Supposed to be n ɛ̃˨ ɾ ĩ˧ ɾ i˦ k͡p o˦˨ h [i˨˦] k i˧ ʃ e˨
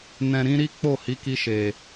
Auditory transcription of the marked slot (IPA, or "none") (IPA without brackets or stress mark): i˨˦